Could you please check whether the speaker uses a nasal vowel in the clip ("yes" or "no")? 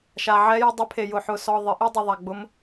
no